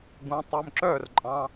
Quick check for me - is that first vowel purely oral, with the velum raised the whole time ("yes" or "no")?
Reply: no